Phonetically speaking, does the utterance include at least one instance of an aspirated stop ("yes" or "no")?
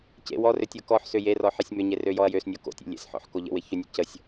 no